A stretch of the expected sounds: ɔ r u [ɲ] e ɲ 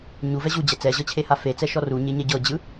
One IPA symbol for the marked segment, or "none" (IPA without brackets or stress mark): ɲ